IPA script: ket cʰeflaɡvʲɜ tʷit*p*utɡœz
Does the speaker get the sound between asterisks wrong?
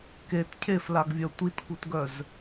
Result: yes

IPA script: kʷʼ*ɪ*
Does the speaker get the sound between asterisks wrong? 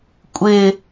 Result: no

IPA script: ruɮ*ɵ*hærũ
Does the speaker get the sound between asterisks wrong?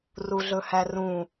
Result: no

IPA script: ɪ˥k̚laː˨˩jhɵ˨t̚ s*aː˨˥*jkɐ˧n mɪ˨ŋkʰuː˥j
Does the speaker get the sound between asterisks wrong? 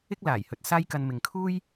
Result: yes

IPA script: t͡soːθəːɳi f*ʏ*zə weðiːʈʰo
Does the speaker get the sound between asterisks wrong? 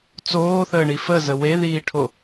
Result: yes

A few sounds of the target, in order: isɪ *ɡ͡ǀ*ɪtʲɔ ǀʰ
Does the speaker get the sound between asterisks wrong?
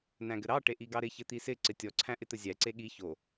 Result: yes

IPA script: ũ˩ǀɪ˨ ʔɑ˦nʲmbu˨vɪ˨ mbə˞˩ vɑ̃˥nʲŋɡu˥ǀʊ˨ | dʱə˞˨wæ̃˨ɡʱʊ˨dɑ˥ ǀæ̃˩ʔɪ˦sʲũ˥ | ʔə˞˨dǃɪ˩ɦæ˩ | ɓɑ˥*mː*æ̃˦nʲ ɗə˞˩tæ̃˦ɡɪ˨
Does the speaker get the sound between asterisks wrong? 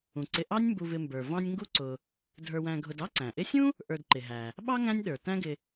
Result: yes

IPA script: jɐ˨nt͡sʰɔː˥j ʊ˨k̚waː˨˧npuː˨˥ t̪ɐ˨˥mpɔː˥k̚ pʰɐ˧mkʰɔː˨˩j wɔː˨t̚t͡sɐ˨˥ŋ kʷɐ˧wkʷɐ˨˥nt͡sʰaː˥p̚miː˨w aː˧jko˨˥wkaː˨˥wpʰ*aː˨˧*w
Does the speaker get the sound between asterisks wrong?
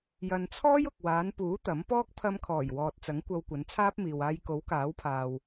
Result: yes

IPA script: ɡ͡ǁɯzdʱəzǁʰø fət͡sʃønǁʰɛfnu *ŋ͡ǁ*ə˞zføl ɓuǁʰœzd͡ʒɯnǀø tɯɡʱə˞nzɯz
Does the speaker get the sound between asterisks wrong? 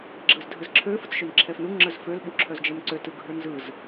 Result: no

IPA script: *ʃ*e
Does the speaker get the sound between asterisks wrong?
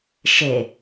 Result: no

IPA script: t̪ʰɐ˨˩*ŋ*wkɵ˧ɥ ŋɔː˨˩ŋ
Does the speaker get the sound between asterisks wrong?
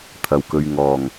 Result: yes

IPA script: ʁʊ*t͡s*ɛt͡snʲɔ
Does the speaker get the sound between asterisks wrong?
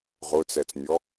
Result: no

